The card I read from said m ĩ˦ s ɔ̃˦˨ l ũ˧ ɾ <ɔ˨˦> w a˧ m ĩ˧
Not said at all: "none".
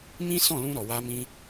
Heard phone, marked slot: ɔ˨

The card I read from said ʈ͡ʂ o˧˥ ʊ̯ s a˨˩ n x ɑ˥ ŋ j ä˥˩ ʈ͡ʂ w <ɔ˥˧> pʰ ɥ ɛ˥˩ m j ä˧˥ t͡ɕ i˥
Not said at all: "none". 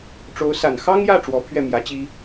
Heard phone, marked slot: ɔ˧˥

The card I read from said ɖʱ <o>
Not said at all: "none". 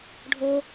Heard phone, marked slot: o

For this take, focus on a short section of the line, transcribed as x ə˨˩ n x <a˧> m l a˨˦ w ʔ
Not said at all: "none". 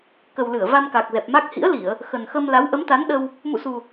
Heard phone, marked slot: ə˧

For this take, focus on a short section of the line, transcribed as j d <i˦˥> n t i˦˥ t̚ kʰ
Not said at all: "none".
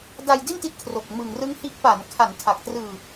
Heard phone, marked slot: i˥˩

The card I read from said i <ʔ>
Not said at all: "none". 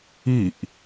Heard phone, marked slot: ʔ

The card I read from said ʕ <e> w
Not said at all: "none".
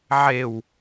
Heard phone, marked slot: e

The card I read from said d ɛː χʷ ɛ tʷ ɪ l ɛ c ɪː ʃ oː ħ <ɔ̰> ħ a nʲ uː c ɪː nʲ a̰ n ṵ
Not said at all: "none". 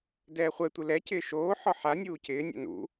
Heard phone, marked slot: ɔ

